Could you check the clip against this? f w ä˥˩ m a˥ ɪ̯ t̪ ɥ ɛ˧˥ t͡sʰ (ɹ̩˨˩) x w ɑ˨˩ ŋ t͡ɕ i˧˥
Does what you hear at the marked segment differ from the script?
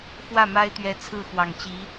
yes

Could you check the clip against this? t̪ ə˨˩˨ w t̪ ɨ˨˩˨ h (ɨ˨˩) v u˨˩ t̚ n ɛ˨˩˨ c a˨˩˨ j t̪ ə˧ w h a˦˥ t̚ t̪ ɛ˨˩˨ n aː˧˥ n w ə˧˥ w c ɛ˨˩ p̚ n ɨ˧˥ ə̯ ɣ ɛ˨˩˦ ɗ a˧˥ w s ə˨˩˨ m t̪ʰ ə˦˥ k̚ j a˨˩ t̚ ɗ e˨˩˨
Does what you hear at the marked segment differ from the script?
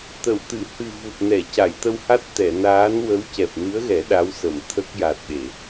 no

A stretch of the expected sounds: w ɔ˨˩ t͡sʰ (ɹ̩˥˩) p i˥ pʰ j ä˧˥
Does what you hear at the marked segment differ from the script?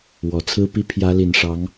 yes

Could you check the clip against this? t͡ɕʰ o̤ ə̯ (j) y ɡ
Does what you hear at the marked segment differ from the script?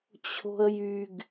no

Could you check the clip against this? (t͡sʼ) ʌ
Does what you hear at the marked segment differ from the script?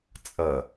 no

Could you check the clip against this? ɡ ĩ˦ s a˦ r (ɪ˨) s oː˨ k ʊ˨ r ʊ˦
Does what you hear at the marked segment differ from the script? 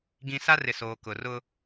no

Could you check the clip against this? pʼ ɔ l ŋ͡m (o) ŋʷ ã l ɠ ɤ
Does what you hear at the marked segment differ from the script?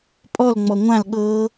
yes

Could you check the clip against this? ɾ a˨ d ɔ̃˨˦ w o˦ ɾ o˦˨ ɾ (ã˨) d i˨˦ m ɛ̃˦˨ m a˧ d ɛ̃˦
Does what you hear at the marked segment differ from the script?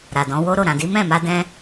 no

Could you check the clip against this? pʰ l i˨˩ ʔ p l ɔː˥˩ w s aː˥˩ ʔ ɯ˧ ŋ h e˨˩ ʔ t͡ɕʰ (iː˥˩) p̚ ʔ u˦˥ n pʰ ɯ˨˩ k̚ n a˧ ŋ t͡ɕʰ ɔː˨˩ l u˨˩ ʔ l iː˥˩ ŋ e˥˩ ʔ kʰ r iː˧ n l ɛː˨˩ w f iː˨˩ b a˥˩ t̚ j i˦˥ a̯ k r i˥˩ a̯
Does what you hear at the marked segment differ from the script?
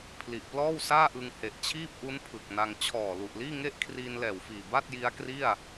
no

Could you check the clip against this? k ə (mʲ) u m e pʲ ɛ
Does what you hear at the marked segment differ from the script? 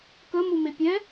yes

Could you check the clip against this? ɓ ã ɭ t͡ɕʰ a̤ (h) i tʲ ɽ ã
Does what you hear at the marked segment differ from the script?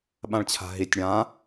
yes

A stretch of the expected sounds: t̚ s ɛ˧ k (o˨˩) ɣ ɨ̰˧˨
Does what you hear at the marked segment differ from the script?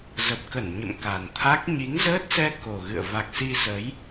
no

